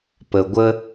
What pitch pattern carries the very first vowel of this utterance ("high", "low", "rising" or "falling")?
low